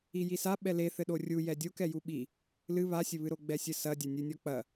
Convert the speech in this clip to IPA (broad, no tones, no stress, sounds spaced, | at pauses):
i j i s a ɓ ɛ l e θ ɘ ɗ o rʲ u j ɛ dʲ o k ɛ j u ɓ i | l ɨ β a sʲ ɘ β ɨ ɾ o ɡ͡b ɛ sʲ ɘ s ɐ dʲ a nʲ ɨ nʲ ɔ k͡p ɐ